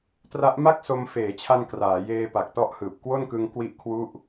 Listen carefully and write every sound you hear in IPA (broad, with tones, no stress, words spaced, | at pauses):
tra˦˥ʔ ma˥˩k̚so˧m feː˩˦t͡ɕʰa˧n kraː˩˦jeː˧ pa˨˩k̚tɔ˦˥ʔhɯː˨˩p̚ kwo˥˩nkɯ˧ŋ kwi˥˩ʔkʰwu˥˩ʔ